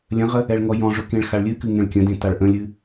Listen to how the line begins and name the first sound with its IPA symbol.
lʲ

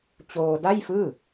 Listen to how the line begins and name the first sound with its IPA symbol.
t͡ɕ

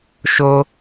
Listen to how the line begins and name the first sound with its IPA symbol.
ʃ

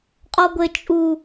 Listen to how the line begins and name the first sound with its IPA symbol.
qʼ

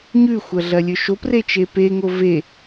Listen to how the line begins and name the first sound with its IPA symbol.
ɲ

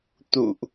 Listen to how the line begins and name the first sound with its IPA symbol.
t̪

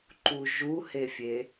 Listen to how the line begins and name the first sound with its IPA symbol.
ǃ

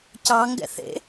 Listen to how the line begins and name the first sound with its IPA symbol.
c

